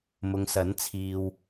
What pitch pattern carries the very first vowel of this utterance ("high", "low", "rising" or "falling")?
low